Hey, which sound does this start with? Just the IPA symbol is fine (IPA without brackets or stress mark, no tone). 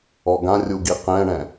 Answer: ɔ